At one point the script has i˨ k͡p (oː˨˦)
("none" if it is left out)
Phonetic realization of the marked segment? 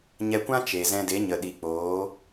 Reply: oː˨˦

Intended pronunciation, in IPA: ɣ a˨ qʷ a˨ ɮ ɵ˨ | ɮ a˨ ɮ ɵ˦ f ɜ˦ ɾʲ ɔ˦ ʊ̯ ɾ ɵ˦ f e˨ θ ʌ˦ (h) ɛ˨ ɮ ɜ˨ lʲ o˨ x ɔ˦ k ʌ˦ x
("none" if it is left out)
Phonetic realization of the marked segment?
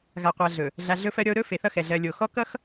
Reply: x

